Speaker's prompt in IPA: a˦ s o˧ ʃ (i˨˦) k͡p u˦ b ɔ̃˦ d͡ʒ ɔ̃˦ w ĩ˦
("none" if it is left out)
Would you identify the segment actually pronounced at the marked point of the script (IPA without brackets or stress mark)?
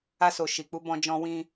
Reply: i˧